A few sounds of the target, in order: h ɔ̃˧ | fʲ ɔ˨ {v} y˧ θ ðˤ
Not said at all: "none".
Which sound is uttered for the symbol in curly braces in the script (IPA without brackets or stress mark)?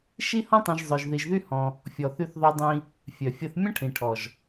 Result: θ